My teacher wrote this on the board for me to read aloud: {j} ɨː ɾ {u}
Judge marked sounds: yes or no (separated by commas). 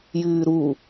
yes, yes